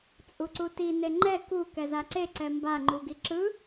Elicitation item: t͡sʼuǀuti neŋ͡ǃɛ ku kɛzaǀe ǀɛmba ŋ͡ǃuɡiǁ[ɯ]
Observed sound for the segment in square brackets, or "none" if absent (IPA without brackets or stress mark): ɯ